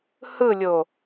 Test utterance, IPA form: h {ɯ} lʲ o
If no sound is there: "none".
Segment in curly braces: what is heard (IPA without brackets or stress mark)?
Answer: ɯ